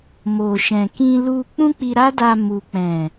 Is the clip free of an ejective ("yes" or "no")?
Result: yes